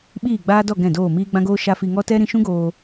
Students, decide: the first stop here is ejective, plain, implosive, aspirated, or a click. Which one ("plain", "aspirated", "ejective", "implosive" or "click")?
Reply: implosive